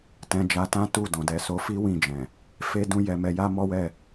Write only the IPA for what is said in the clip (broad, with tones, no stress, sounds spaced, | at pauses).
t ɛ̃˧ d͡ʒ a˧ t ã˦ t u˦˨ d ɔ̃˨ d ɛ˨˦ s o˧ f i˦ w ĩ˦˨ d͡ʒ ɛ̃˨ | f e˦ d ũ˦ j ɛ˧ m ɛ˧ j a˦ m ɔ˦ w ɛ˦˨